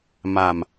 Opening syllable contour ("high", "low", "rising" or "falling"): low